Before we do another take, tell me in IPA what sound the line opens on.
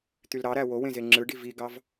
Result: t̪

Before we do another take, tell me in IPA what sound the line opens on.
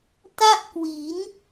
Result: t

